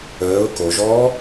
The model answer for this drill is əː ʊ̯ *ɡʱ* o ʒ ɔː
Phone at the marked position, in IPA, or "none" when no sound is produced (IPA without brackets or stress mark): k